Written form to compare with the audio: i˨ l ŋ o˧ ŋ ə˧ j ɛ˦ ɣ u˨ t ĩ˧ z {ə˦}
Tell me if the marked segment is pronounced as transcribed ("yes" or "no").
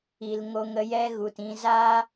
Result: no